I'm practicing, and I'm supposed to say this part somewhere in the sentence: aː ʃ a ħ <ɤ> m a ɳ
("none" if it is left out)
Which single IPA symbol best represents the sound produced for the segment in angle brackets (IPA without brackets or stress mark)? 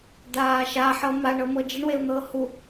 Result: ɤ